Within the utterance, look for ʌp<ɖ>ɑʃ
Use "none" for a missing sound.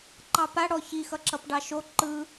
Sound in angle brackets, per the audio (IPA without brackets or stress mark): ɖ